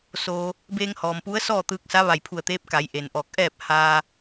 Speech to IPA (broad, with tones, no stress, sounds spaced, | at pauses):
s oː˩ | b eː˧ ŋ h ɔː˩ m p u˧˥ ə̯ s ɔː˥˨ t̪ ɯː˧ k̚ s a˧˥ ʋ a˧˩ j pʰ u˧˩ ə̯ t̪ eː˧˥ p̚ k a˩˧ j ʔ e˩ n ʔ ɔː˧˩ k̚ ʔ ɛː˥˨ p̚ h aː˧